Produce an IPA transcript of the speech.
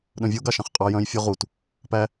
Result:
ɗ œ̃ vʲ o ɡ ɑ ʃ ɑ̃ χ qʼ ɑ j œ̃ j fʲ ɔ ʁ u t | p æ

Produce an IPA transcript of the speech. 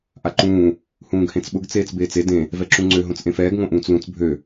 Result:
ʔ a ǃ ũː | h ũː ɡ h ẽ t͡s ɓ ʊ ɡ t͡s eː t͡s b eː t͡s e d ẽ | v ɛ ǁ ũ ŋ͡ǀ ø ɦ õ t͡s ʔ ẽ f ɛː ɡ ŋ õ ʔ ũː t͡s l ũ t͡s bʱ ø

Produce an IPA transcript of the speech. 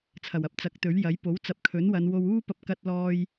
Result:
t͡sʰ ɐ˨˩ w ɐ˧ p̚ t͡s ɐ˨˥ k̚ t̪ ɵ˨˥ ɥ j ɐ˨˥ j p o˨˥ w t͡s ɐ˨˥ p̚ kʰ ɵ˨˥ n w ɐ˨˧ n w o˧ w uː˥ p ɐ˧ p̚ k ɐ˧ t̚ l ɔː˧ j

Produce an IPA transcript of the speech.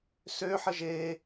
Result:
s ø ħ ə ʒ e

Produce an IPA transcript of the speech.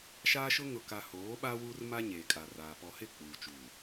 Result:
ʃ aː˦ ʃ ʊ˦ ŋ ʊ˨ k a˨ h oː˨˦ ɓ a˦ w uː˦ r m a˦ ɲ eː˨ kʼ a˨ r aː˨ p ɔ˨ h ɪ˦˨ k͡p uː˨ t͡ʃ uː˨

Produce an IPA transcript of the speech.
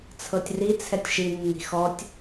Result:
t͡sʰ ɤ tʲ r i t͡sʰ ɛ tʲ ʃ i nː i̤ x ɔ tʲ

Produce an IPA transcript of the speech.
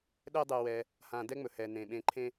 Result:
ɗ ɛ˦ dˤ ɛ˨ w ɛ˨ | h ã˨ d ɛ˦ ŋ͡m ɵ˩ h ɛ˩ n ẽ˩ ɓ ẽ˨ ǃʰ ẽ˦

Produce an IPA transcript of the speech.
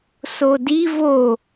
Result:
s o d i v o

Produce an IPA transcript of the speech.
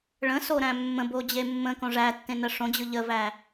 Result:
ɭ ə̃ s o ɾ æ̃ mː ə̃ b o d͡ʑ e mː ə̃ k õ ʐ æ tː ẽ n ə ʂ õ d͡ʑ ɯ ʎ ə v æ

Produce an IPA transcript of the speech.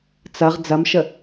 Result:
t͡s ɐ ʁ d͡z ɐ m ʃ ə

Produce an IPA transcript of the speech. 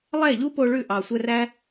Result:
lˠ ɛ˦˨ ʎ u˦ p o˧ ɭ ʉ˧ ʔ ɑ˨ sʷ ɛ˧ r æ˦

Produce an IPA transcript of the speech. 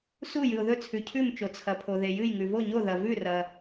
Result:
s u˥˩ j ɨ˩ ʊ̯ ð ɵ˥˩ t͡sʰ ʉ˩ cʰ ʉ˥˩ m t͡ʃ o˩ t͡sʰ ɐ˩ pʰ o˩ ð e˩ j ɨ˥˩ j ŋ ʉ˩ v o˥˩ ɲ o˥˩ ð ɐ˩ v ʉ˥˩ r ɐ˩

